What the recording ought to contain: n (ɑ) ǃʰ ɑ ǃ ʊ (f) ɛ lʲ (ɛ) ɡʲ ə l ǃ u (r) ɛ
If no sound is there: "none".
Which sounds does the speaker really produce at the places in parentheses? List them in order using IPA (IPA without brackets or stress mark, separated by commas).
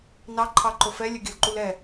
ɑ, f, ə, l